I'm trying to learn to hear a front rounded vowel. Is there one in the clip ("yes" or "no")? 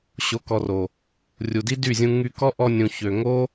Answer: yes